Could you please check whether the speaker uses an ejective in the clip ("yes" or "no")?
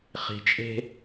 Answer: yes